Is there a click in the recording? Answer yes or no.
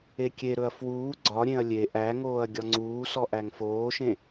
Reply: yes